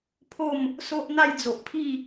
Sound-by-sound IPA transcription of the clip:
pʰ o˥˧ m | s o˦ ʔ n̪ a˥˧ j d͡z o˨ ʔ pʰ i˥˧

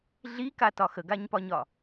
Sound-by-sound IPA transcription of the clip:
ɮ i k a t ɒ x ə ɡ a ɲ p ɒ ɲ ɒ

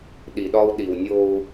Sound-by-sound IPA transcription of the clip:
ɗ i˨ ɗ ɒ˦ u̯ ɗ i˨ w nʲ o˦ u̯

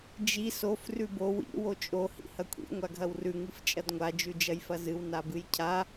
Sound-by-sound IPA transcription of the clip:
d͡ʒ i s o f r ʉ b o w ḭ w o t͡ʃʼ o h ḭ h ɐ kʷʰ ḭ ŋʷ a ɡʱ ɐ w r ʉ ŋ ɨ f t͡ʃʼ ɐ d ŋʷ a d͡ʒ ʉ d͡ʒ ɐ j f ɐ z ɨ w n a b ɨ j cʰ a

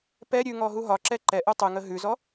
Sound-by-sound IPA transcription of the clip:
p ɛ ɾʲ ʉ ŋ ɔ ɦ u ɦ ɒ ǁ ɛ ǃ ɛ ʔ u tˤ ʉ ŋ ə ɦ ʉ z ɔ

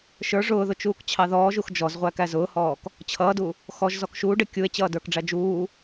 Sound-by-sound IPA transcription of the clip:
ʃ ə˞ ʐ ʊː ð ʊ t͡ʃ uː k t͡ɕʰ ɑ ð ɔː ʒ u x d͡ʒ ɔ z ʁʷ æ k æ z ʊː h ɔː k | t͡ɕʰ ʌː d u | x ɔ ʒ z ɔ k ʃ uː ɖ ɪ kʲ u e̯ t͡ɕ ʌː d ə˞ k ɖ͡ʐ æ d͡ʒ uː

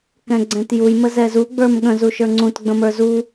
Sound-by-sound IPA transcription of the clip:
k ɛ̃ ɡ͡ǀ ɛ̃ t j u j m ə z ɛ z u ɡ͡b ə˞ m ɠ ə̃ z u ʃ ə˞ ŋ͡ǀ ũ t ɡ͡b ə̃ m ə˞ z u

